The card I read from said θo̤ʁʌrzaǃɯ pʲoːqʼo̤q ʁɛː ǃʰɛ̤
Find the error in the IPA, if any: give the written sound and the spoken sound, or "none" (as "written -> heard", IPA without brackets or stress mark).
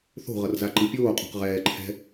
none